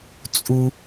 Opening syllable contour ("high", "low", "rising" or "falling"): high